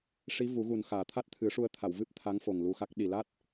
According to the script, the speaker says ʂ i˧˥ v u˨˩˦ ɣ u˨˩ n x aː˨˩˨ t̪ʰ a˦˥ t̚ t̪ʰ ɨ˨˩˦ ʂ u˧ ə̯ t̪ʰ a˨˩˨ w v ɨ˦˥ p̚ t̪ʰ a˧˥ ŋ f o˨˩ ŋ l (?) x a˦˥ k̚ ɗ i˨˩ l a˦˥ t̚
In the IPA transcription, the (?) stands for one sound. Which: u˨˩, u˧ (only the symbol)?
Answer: u˧